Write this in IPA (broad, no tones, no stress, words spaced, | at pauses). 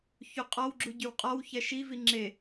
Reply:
çuqʼɔwɡ͡ǁu ɟywqʼɔwçɛ ʃivi ŋ͡ǁe